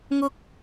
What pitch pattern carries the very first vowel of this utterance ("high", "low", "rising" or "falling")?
high